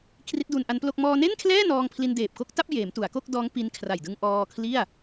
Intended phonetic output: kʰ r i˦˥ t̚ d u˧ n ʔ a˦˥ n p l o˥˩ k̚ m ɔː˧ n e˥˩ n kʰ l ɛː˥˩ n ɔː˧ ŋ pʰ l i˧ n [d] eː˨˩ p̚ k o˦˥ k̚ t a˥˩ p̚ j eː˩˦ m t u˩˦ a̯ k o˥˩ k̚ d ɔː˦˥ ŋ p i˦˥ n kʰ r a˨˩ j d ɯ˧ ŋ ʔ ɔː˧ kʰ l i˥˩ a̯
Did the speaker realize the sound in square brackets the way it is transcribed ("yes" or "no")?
yes